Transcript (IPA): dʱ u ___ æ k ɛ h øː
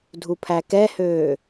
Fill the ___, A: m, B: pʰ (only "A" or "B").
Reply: B